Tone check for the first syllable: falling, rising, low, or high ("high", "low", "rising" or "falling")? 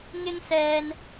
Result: high